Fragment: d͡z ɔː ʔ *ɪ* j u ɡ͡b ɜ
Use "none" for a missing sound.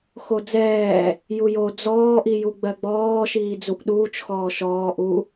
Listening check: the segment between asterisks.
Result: i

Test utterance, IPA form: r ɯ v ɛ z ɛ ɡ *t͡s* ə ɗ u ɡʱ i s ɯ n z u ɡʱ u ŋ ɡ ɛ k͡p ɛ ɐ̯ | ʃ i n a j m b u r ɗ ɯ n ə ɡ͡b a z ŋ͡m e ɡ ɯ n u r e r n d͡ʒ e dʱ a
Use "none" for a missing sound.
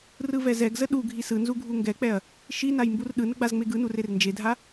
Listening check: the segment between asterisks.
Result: z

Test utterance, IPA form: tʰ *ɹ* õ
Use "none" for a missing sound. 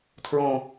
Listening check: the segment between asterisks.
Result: ɹ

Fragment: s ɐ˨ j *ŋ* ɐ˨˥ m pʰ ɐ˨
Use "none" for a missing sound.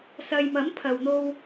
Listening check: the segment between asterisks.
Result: m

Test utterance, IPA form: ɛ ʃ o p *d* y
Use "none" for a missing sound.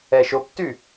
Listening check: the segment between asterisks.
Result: t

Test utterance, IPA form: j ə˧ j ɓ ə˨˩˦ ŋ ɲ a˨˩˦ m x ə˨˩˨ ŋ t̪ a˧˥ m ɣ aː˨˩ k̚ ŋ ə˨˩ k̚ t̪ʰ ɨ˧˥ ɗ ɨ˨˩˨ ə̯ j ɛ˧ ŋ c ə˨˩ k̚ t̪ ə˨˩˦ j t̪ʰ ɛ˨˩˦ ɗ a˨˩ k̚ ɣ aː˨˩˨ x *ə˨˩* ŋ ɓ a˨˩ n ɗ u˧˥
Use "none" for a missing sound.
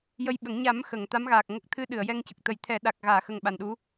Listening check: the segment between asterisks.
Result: ə˨˩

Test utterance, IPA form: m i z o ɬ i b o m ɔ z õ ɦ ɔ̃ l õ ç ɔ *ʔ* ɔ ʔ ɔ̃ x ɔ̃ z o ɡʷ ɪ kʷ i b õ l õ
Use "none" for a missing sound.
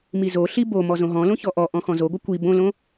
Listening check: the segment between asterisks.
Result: ʔ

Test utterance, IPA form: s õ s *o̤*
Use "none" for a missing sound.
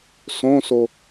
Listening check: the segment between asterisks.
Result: o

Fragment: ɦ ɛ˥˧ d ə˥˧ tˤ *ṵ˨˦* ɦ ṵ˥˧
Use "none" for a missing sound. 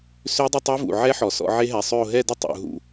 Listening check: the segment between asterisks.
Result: ṵ˨˦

